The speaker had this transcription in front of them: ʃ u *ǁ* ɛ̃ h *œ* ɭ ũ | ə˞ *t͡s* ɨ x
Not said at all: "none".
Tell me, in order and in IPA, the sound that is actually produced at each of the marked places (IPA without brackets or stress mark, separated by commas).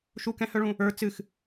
k, œ, t͡s